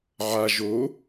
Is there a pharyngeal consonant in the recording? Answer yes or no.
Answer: yes